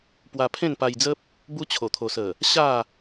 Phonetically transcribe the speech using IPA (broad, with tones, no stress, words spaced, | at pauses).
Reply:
pwa˧pʰẽ˥˧npa˧jd͡zə˦p̚ | bu˧t͡ɕʰo˨˩t̪ʰo˨˩sə˨˩ | ɕa˥˧